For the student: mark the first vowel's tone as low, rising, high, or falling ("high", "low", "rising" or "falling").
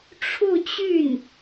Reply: falling